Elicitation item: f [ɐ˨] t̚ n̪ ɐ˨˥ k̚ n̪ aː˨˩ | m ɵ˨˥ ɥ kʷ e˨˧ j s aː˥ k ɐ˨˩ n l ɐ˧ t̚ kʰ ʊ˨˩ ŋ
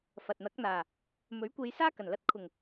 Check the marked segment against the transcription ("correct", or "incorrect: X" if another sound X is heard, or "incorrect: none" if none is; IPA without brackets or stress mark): correct